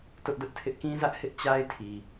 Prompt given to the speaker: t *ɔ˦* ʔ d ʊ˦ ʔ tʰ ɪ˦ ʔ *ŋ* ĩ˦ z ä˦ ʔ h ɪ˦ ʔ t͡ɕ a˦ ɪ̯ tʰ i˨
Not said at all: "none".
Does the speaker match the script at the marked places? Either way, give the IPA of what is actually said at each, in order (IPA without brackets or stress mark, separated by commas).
ʊ˦, k